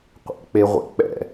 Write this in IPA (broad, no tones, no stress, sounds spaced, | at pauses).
qʷ ɛ̰ k͡p e ʁʷ ḭ k͡p ɛ̰